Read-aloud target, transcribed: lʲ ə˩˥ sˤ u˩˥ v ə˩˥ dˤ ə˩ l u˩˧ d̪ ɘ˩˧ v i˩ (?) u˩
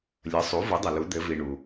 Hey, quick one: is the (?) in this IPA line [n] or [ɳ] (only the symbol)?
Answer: ɳ